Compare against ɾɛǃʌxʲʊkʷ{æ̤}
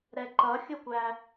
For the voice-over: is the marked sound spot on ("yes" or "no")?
no